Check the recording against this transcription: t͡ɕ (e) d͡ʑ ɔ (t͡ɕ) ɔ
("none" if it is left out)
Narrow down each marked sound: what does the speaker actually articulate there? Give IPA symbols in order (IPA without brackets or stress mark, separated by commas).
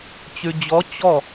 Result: y, t͡ɕ